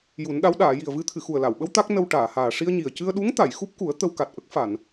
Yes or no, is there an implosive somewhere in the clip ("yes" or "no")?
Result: yes